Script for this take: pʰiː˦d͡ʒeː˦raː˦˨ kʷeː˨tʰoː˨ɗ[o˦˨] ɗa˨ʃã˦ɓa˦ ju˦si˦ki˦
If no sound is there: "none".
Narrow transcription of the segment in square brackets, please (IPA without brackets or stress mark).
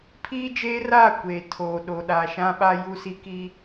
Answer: o˨